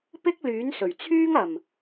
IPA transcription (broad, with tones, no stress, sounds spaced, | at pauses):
p ɪ˥ k̚ l yː˨˥ n s ɵ˨˩ ɥ t͡sʰ yː˥ ŋ ɐ˨˩ m